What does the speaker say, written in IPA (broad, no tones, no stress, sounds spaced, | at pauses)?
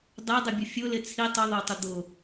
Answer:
dˤ e dˤ ɪ bʲ ʊ fʲ ʊ l ɪ t͡sʰ i tˤ ʊ ðˤ o tˤ ʊ d̪ ʊ